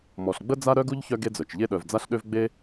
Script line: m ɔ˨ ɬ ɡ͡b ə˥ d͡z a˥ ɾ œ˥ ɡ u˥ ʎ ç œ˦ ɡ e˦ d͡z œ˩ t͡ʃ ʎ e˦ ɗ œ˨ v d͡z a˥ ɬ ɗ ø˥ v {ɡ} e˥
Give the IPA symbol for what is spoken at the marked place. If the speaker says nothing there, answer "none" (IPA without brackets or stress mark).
ɡ͡b